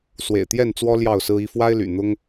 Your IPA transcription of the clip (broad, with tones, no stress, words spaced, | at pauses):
swḛ˨˩ɪ̯t̪jɛ˥˨nt͡swɔ˦ ljɑ˥˨ʊ̯sɹ̩˦i˦ fwa˦ɪ̯ly̰˨˩ n̪ʊ˦ŋ